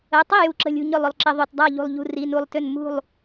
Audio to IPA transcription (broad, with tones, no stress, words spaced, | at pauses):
ə˩˧˩tˤi˥˩ ju˧˩ǁə̤˧˩lʲṳ˧˩ ɲʏ˥˩lˠʏ˩˧˩lˠǁɪ˧˩˧ ðˤø˩˧˩tdˤa˥˩ ʎṳ˧˩lˠʎṳ˧˩ ri˩˧˩nu˧˩lˠ tʏ˥˩n mṳ˥˩lˠ